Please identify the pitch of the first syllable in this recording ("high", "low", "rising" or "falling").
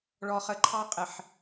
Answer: low